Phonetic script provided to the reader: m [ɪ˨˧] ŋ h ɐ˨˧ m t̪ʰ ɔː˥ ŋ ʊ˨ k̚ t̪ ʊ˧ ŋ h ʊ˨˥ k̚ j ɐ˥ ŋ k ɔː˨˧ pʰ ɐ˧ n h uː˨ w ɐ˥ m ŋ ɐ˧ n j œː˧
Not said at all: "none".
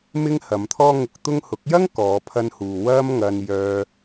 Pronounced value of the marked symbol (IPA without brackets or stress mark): ɪ˥